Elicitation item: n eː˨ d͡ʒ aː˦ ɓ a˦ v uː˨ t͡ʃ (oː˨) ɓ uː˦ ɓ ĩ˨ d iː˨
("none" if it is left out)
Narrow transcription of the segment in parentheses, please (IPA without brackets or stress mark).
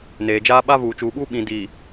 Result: uː˨